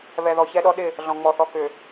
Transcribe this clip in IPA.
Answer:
β ɛ˨ ð ɔ˨ ç ɛ˦ ɗ ɔ˦ ɗ ɪ˦˨ | ɮ ɔ̃˨ ŋ͡m ɔ˨ θ ɔ˨ k ʏ˨

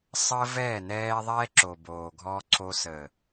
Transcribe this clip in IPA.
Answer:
sˤ əː˦ v ɛː˦˨ n ɛː˦ ðˤ ɛː˦ ǁ o˨ b oː˨ ɡʱ ɔ˦ ǀʰ o˦ s əː˨

